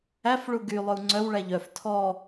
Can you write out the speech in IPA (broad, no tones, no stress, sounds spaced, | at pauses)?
æ f ɭ u ɡ y lˠ ɵ u̯ ŋ͡ǀ œ w ɭ æ ʎ œ f tʰ ɔ